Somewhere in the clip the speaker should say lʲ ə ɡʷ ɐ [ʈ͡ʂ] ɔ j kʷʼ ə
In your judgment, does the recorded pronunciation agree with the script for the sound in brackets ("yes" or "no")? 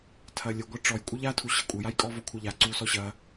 yes